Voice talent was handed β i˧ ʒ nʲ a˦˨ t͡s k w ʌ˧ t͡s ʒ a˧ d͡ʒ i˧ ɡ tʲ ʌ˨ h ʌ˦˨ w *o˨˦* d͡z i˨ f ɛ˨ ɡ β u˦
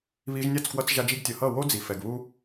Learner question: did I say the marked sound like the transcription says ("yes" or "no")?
no